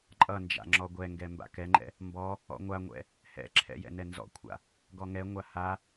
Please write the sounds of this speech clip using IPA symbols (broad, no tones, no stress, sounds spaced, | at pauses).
ǃʼ ʌ n d͡ʒ a̰ ŋ͡ǁ ɔ ɡʷ ɛ ŋ ɡ ɛ m b a̰ k ɛ ŋ͡ǃ ɛ̰ | m b ɔ | ɔ̰ ŋʷ a ŋʷ ɛ̰ | h ɛ̰ ǁʰ ɛ̰ j ɛ̰ n ɛ n z ɔ̰ kʷʰ a̰ | ɡ ɔ ŋ ɛ ŋʷ a h a